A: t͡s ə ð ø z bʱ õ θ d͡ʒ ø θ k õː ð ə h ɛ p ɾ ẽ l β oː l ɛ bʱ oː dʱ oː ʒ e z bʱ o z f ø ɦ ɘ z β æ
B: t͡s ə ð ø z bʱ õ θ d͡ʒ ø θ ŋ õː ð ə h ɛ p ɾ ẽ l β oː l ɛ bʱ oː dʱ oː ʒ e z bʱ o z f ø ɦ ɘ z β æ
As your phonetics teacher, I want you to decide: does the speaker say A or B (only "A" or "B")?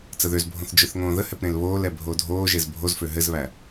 B